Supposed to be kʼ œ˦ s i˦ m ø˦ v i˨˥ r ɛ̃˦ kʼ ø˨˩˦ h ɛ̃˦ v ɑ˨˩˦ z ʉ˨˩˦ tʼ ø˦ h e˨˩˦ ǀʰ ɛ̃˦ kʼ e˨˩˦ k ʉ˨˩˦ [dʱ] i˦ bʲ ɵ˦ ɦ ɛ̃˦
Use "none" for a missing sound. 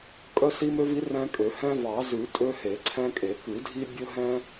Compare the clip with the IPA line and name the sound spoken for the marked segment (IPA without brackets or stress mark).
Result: dʱ